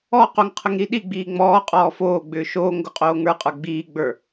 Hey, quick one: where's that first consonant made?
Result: uvula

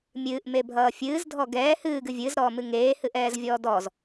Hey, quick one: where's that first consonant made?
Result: lips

